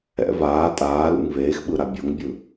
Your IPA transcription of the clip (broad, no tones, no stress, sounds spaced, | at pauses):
ɛ̰ v aː tʼ aː l ṵ ŋ v eː x ɓ ɯ ɾ a bʲ o ŋ bʲ ɯ